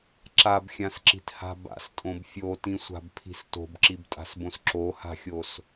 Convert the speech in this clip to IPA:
ǁ a b xʲ ã s ǁ i̤ t h a̤ b a̰ s tʼ õ b fʲ o t ĩ sʷ a̤ b pʰ i̤ s t o̤ b ǁ i b tʼ a̤ s b õ s ǁ o h a̤ xʲ o s

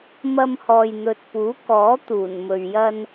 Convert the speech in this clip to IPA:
m ɐ˧ m h ɔː˨ j n̪ ɵ˨ t̚ p uː˨˥ k ɔː˨˥ t̪ uː˨˩ n m ɵ˨ ɥ j ɐ˧ n

